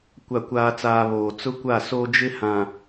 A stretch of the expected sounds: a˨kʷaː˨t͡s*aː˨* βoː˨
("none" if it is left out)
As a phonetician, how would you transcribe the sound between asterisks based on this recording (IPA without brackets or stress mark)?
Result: aː˨